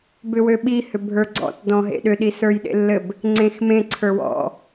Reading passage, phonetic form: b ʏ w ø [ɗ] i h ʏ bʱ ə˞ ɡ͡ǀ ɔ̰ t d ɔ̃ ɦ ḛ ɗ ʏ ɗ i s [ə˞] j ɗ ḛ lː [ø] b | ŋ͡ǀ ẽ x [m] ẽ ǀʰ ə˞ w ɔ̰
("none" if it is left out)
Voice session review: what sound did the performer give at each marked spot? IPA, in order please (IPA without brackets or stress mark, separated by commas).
ɓ, ə˞, ɘ, m